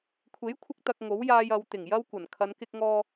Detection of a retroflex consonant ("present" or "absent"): absent